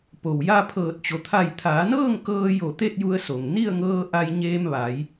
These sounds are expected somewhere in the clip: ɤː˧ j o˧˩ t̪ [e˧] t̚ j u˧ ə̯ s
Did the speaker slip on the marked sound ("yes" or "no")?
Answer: yes